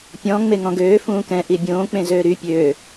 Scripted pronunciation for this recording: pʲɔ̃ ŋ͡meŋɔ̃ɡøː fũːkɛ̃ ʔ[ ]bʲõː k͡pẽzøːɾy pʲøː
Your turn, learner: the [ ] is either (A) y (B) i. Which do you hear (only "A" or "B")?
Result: B